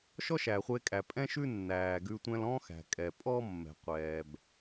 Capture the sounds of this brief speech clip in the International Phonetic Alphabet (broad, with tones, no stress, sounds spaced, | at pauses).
ʃ ɔ˥ ʃ æ˩ χʷ e˧ kʼ æ˩ pʼ ɛ̃˥ ʃ ʉ˥ nː æː˩ ɡ ʉ˧ tʷ ɛ̃˧ l ɔ̃ː˥ x æ̤˩ kʼ ɛ˩ pʼ ɔ˥ mː ɛ̤˩ qʷ ɛː˩ b